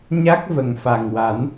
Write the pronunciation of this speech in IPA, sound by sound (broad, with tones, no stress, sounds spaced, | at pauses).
ɲ a˦˥ k̚ v ə˨˩ ŋ f a˨˩ ŋ w a˨˩˦ n